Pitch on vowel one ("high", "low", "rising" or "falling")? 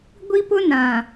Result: high